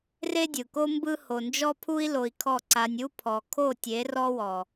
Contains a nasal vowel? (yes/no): no